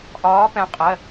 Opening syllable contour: rising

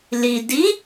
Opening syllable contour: low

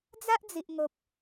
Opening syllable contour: high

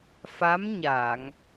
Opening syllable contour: rising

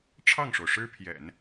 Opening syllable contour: falling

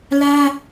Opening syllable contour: high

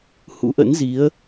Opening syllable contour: rising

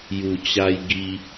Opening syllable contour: low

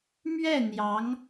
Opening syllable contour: falling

